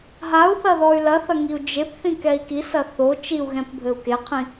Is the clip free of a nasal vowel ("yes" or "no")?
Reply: no